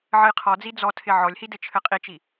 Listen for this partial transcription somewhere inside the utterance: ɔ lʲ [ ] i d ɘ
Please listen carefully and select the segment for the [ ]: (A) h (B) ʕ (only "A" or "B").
A